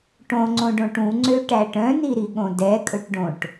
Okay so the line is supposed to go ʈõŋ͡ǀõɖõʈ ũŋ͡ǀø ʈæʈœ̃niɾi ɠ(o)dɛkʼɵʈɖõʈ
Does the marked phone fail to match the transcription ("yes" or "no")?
yes